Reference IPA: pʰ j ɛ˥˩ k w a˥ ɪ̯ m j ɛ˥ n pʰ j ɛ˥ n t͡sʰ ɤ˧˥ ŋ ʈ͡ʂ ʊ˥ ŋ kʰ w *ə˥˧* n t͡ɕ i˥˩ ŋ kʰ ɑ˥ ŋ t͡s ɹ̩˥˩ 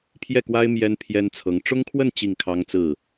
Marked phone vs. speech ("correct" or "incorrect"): correct